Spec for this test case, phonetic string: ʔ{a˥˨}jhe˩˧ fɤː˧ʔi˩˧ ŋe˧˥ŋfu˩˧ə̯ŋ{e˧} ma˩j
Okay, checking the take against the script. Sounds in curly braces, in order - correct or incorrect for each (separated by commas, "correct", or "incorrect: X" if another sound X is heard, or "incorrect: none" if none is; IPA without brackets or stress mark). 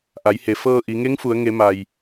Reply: incorrect: a˩˧, incorrect: e˩˧